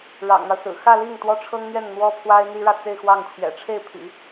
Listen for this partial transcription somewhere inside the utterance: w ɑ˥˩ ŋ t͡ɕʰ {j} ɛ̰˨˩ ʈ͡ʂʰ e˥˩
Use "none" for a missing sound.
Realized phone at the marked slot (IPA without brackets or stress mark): j